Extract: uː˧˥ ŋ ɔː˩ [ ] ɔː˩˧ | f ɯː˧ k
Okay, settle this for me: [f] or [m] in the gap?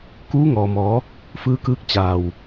m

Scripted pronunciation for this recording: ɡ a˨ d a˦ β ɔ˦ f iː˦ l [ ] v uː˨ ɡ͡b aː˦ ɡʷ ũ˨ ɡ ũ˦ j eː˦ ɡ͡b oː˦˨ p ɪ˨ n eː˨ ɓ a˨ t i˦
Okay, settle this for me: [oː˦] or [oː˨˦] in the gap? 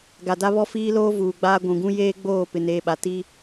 oː˦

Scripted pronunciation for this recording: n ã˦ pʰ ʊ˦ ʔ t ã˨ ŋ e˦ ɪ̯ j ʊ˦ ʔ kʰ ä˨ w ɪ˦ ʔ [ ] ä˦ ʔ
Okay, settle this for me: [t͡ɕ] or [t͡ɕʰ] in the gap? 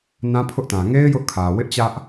t͡ɕ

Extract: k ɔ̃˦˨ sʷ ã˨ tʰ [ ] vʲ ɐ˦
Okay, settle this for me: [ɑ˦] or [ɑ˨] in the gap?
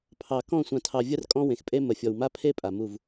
ɑ˨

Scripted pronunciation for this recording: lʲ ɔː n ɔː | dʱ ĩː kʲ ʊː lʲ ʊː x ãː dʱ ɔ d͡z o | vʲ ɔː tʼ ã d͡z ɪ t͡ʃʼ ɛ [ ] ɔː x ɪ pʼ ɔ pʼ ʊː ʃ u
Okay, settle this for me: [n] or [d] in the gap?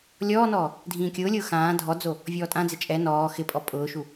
n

